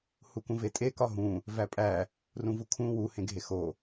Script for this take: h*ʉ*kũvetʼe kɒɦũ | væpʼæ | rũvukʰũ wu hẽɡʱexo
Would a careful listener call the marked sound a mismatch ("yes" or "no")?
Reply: yes